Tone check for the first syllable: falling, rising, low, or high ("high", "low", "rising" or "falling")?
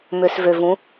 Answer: low